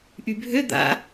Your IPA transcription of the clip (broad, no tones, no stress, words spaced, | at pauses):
ʔybʱø d̪a̰